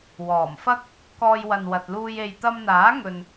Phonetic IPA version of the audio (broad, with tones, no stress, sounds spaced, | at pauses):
w ɔː˨˩ m f ɐ˥ k̚ | k ɔː˧ j w ɐ˨ n w ɐ˨ t̚ l uː˧ j e˨ j t̪ ɐ˧ m n̪ aː˨˥ ŋ ɵ˨ n